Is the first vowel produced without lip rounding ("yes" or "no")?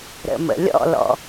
yes